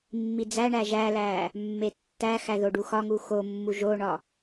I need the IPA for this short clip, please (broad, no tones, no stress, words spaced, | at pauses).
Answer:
mːid͡zæɳæ ʒælæ | mːetːæxæ ðoɖuxɒŋu xomːu ʒoɳɒ